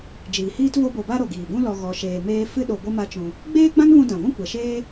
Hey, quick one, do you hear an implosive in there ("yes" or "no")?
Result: yes